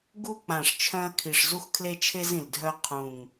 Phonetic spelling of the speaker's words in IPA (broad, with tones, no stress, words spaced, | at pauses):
ɡu˧k͡pã˨˩ʂ t͡ʃʰœ̃˧ɐ̯kʰi˨˩ʂ zu˧xkʰle˧t͡ʃʰe˧z ĩ˨˩ldʱœ˧ qʰũ˨˩ŋ